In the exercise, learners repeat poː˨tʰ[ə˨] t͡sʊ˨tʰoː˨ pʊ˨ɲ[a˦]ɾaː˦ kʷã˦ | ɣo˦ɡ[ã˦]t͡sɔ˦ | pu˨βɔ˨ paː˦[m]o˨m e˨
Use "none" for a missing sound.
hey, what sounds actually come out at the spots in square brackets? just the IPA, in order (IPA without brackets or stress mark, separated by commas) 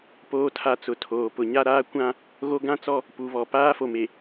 a˨, a˦, ã˦, f